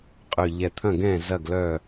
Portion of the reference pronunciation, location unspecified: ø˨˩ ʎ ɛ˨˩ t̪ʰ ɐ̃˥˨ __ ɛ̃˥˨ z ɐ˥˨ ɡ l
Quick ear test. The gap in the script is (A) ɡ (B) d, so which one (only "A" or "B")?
A